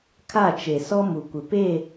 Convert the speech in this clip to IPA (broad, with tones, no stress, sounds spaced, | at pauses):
kʰ a˦˨ t͡ʃ e˨ s ɔ˦ m u˨ kʷ ɪ˨ p e˦˨